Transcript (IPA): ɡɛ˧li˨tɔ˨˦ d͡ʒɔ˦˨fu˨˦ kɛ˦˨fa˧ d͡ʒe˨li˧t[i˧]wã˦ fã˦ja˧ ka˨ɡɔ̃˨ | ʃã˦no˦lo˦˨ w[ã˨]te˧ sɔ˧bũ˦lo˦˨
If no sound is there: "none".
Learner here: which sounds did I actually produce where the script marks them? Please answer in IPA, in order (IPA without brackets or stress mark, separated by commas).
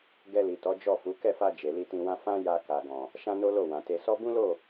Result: ĩ˧, ã˨